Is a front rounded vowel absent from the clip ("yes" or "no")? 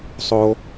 yes